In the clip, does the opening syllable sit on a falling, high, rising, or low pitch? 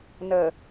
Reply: low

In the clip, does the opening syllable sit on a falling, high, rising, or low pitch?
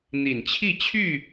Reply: low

